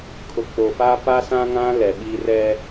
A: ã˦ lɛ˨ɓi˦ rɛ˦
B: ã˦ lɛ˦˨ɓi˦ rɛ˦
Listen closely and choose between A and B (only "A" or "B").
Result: A